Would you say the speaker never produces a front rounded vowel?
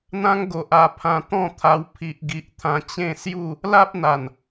yes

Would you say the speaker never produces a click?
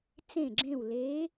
no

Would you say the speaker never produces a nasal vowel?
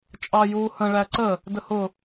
no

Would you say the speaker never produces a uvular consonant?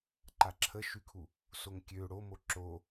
yes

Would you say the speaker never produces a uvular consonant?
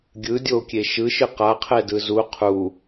no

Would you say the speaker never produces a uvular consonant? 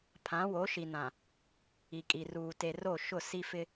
yes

